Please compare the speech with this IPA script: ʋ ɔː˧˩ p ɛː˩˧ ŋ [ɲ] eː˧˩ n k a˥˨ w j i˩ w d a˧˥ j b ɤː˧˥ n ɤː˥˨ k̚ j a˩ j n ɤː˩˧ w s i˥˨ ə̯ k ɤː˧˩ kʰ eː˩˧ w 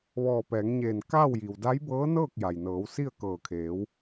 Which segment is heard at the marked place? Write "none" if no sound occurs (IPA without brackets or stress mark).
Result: ɲ